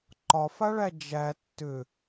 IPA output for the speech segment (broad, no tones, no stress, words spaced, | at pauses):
ǃɒfaɭæ d͡ʒæ tːʏ